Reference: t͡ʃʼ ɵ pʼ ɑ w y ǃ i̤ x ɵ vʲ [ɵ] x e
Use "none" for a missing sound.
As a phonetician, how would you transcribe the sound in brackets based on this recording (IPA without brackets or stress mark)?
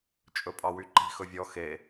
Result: ɔ